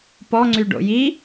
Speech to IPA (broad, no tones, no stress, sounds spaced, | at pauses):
p ɔ ŋ͡ǀ y ɖ o̰ j i